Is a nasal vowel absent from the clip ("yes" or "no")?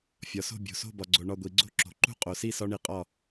yes